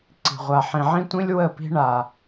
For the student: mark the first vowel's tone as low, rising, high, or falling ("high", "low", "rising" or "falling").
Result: low